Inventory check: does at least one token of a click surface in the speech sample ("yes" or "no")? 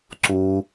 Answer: yes